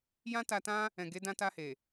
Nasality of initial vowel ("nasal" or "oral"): nasal